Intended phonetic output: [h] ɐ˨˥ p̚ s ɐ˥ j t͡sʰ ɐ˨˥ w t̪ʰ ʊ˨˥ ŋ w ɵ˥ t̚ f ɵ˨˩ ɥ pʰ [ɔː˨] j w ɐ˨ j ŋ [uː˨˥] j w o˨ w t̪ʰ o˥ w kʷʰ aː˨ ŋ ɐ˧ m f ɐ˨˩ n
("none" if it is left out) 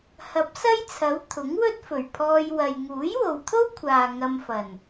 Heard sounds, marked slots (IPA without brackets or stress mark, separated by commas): h, ɔː˧, uː˨˥